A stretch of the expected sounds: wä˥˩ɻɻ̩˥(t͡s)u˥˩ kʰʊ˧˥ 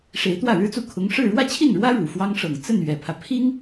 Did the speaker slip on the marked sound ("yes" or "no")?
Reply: no